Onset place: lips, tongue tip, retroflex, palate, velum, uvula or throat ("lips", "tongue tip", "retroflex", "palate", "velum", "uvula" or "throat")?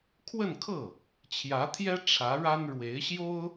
velum